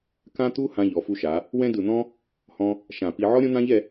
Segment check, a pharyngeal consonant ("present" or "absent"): present